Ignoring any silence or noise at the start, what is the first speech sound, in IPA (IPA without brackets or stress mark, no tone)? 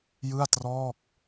j